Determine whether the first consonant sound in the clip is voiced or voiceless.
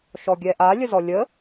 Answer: voiceless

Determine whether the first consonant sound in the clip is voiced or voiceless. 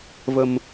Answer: voiced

